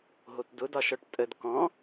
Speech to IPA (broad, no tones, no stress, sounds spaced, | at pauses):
ɦ o t d ʊ d ɒ ʃ ɔ ʈ tʼ ə d k ɔ̃